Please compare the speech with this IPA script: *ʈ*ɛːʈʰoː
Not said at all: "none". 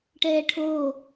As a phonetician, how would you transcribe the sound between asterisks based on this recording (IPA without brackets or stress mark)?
ʈ